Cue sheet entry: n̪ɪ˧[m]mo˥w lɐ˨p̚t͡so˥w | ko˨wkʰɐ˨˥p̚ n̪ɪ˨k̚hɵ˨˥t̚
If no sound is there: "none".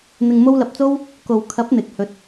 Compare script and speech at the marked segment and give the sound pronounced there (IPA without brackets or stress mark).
ŋ